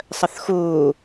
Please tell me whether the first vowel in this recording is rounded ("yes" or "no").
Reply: no